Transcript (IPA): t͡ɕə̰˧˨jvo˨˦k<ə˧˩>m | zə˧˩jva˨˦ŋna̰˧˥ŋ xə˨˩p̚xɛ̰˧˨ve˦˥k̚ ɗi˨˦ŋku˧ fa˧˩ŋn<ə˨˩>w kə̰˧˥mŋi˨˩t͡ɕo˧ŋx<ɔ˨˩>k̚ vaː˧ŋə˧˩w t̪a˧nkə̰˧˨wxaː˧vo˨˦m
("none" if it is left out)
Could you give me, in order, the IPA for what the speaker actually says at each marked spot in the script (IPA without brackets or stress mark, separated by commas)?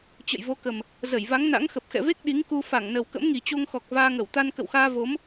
ə˨˩, ə˨˩, ɔ˨˩